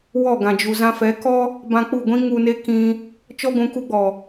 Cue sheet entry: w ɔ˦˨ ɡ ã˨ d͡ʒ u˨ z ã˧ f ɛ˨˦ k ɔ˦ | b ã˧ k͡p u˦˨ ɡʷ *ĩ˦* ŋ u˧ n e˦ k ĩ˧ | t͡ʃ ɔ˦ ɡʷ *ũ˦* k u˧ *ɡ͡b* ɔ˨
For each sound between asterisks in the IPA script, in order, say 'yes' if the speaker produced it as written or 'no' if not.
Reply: yes, no, yes

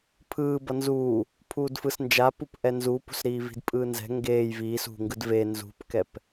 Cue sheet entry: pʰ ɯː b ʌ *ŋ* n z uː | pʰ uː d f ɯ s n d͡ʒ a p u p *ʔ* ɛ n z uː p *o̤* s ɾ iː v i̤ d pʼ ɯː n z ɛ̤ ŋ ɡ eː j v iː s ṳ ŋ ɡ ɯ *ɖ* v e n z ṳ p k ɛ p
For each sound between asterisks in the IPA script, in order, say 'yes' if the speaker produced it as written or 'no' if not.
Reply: no, yes, no, no

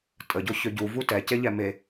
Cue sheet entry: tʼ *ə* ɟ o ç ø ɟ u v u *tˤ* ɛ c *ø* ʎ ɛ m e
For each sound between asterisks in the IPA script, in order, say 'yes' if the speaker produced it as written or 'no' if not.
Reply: yes, no, no

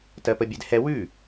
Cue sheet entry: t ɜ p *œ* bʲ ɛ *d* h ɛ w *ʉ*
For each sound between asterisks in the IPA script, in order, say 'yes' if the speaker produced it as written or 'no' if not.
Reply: no, yes, yes

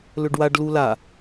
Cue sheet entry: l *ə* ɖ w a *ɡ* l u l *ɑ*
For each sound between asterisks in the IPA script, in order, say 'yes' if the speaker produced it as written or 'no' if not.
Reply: no, no, no

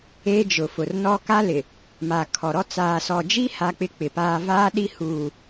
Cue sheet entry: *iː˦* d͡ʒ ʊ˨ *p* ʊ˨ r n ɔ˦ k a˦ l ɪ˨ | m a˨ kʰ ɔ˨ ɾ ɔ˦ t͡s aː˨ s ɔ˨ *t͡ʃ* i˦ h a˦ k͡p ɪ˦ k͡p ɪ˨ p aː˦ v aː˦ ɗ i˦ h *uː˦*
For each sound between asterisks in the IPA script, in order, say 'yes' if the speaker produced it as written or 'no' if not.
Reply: no, no, no, no

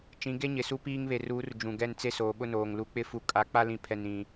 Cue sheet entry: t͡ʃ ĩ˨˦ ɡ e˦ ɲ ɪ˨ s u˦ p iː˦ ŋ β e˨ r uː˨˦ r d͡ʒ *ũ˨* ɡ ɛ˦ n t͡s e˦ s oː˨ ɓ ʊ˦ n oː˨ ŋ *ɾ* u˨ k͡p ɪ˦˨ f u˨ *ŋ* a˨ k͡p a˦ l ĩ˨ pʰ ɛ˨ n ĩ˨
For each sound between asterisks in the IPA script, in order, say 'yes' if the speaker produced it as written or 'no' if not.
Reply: yes, no, no

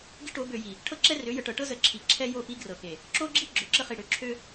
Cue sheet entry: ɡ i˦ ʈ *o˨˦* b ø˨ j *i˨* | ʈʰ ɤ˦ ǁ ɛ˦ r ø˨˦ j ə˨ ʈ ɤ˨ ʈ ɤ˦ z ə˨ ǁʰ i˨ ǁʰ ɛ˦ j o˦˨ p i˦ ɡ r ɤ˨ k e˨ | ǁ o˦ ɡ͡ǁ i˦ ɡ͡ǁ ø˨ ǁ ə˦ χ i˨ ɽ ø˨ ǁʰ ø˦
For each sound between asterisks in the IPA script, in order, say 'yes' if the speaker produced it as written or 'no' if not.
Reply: yes, yes

